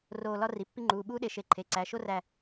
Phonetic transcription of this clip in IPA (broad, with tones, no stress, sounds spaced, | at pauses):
r oː˧˩ l ɒ˥ r i˩˧˩ pː i˥ ŋ͡ǃ uː˩˧˩ ɓ uː˥ ɗ e˧˩ ʃ e˧˩ ǃʰ e˩˧˩ ǀ æ˩˧˩ ʃ o˥ r æ˧˩